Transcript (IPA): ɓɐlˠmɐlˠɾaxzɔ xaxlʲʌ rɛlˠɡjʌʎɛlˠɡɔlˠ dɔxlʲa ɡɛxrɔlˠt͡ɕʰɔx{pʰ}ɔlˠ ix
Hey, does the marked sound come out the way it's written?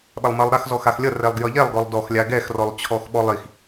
no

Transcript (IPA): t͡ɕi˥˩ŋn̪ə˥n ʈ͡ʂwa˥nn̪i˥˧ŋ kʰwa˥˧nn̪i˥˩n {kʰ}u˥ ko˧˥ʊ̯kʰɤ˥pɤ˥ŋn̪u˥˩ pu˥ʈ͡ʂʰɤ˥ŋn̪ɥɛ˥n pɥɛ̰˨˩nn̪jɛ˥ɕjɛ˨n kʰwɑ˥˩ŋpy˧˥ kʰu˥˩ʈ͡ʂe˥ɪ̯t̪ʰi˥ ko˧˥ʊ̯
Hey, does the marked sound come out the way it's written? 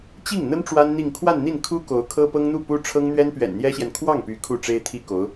yes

